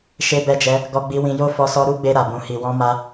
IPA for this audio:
ʃ e˧ b ɛ˧ d͡ʒ ɛ˧ | ɡ ɔ˧ ɡ͡b i˧ w ĩ˧ j o˦ f ɔ˦ s ɔ˦ ɾ u˦ ɡ͡b e˧ ɾ a˨ b ũ˨ h i˨ w ɔ̃˧ m a˧

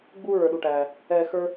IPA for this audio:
ɡ͡b uː˦ ɹ ə˞˨ ɗ u˩ ʈ æː˩ | ɛː˨ x ə˞˦

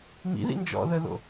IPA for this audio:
m ḭ ð ḭ n d͡ʒ ɔ̰ ð ə ð o̰

